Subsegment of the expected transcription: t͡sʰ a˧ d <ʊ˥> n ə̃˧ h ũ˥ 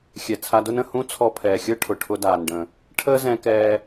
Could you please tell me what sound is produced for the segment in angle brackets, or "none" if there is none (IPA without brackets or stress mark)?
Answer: ʊ˥